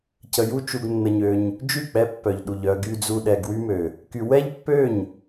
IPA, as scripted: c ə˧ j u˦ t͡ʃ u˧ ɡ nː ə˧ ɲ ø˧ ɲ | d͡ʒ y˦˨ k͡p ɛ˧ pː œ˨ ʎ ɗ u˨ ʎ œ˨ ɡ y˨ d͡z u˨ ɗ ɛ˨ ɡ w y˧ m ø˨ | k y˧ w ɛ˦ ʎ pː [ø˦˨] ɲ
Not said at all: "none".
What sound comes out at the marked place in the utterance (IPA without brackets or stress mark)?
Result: ø˦˨